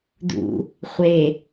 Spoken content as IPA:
d ṵ | χʷ e

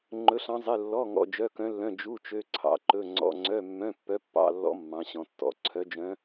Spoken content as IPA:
ŋ͡ǃ ɵ˧˥ ɬ ɑ̃˧˥ zˤ e˧˥˧ lː ɔ˧˥˧ ŋ ɔ̰˧˥˧ d͡ʒ œ˧˥˧ k œ̃˧˥ lː œ̃˧˥˧ d͡ʒ u˧˥˧ t͡ʃ ø˧˥˧ ǀʰ ɑ̰˧˥ ǃ ɵ˧˥˧ ŋ͡ǀ ɔ̰˧˥˧ ŋ͡ǀ œ˧˥˧ mː œ̃˧˥˧ pː œ˧˥ pː ɑ̰˧˥˧ lː ɔ̰˧˥ mː ɑ̃˧˥ ɕ ɔ̃˧˥ tː ɔ̰˧˥˧ ǀʰ œ˧˥ d͡ʒ œ̃˧˥

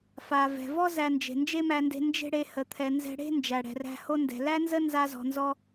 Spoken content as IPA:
f a˩ v ɛ̤˩ v ɔ˥ z æ˧ n d͡ʒ e̤˩ n d͡ʒ e˥ m æ˧ n d e̤˧ n d͡ʒ e̤˥ ɽ e˧ h ə˩ t̪ʰ ɛ˩ n z ɛ̤˧ ɽ e̤˥ n d͡ʒ æ˩ ɽ ɛ̤˩ r æ̤˧ h o˧ n d ɛ̤˩ l æ˥ n z ə˥ n z a˧ z ɔ̤˩ n z ɔ˧

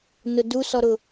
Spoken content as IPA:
n ʊ d u s ɔ ɾ ʊ

